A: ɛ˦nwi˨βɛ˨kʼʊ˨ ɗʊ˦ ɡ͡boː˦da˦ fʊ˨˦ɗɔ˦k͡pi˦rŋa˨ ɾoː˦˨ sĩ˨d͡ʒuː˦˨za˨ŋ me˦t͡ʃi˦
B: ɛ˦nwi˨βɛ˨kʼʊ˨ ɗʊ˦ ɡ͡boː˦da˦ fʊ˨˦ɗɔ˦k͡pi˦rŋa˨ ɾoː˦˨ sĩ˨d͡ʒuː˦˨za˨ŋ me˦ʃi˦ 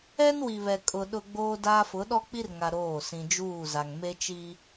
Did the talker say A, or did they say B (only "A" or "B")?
A